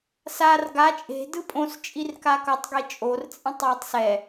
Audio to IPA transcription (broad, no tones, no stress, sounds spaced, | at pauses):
s a r ɡ a t͡ʃʼ e̤ d ɯ pʼ õ s t͡ʃʼ i r k a k ʌ tˤ ɡ e t͡ʃʼ o r t͡sʼ ẽ tˤ j o tˤ s ɛ